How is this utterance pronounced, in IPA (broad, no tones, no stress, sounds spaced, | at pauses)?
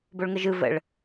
b o ɭ ŋ ə ʒ ɯ v ə̰ ɭ